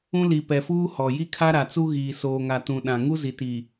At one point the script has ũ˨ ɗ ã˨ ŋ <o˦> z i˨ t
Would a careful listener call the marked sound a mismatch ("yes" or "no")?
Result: yes